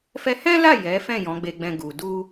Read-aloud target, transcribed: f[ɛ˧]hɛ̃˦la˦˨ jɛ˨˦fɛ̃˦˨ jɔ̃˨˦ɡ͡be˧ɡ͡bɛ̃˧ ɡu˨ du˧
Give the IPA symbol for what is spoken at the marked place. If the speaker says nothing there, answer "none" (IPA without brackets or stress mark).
ɛ˧